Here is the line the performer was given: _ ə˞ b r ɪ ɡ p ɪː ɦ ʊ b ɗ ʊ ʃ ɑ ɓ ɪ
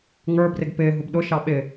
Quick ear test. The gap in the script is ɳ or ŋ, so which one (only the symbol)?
ŋ